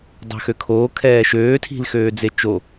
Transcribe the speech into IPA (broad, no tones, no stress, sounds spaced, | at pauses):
dˤ æ̤ x ø kʰ oː kʰ ɛː ʃ øː tʰ i̤ l x øː d͡z e t͡ʃ o